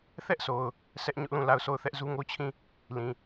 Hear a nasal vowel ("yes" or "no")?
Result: yes